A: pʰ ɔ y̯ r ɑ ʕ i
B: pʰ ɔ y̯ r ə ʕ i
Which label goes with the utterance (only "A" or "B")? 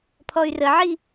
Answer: B